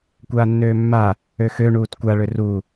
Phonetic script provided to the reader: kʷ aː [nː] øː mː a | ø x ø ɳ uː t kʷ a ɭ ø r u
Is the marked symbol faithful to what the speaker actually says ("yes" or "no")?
yes